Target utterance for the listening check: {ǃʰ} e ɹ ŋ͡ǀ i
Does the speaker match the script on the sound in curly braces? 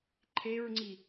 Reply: yes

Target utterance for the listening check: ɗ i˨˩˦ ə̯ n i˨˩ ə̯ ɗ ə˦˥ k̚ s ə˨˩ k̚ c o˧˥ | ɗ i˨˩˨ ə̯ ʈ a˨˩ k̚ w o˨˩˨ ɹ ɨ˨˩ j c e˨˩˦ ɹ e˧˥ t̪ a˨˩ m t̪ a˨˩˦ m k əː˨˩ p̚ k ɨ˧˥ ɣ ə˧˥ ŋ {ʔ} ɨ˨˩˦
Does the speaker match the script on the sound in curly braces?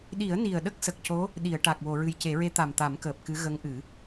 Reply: yes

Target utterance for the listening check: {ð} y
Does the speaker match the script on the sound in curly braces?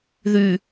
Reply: yes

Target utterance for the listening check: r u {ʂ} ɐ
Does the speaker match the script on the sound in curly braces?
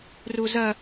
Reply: no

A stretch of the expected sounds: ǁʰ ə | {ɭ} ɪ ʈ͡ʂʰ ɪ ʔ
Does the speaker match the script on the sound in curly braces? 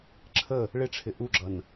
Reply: yes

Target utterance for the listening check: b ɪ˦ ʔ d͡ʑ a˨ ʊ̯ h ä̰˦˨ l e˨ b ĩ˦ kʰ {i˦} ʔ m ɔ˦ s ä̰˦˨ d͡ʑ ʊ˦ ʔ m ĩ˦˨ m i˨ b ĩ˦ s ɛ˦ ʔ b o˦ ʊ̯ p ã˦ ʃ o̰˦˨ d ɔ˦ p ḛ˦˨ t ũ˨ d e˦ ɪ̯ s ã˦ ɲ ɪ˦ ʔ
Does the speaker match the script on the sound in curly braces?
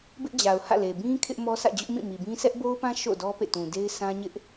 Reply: no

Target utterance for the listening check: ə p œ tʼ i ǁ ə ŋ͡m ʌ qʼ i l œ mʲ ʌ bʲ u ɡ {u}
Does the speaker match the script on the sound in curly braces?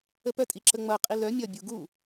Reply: yes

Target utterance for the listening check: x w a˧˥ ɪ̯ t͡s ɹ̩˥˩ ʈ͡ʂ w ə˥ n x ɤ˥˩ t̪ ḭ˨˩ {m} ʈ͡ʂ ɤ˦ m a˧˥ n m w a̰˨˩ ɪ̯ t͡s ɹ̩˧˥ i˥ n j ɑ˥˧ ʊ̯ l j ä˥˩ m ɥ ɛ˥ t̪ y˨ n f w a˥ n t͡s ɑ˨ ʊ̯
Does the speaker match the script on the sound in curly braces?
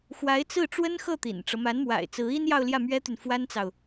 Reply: no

